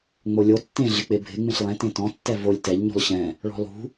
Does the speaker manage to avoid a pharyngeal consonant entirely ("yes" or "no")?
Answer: yes